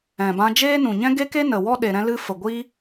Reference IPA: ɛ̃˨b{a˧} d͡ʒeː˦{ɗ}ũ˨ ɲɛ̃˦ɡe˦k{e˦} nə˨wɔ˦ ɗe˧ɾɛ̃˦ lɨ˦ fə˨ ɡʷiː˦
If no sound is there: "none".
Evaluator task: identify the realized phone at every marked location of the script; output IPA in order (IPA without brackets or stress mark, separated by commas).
ã˧, n, e˦